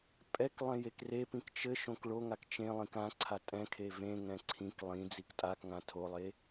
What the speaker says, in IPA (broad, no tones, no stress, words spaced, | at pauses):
pʼɛk lˠɛ̃jekrepĩk t͡ʃɘ ʃõkɭoŋak t͡ʃẽlˠĩk ãǀʰa tʼɛ̃kʰe vẽŋɛ̃ ǀʰĩk lˠĩ d͡ziktʼakŋã tʰolˠe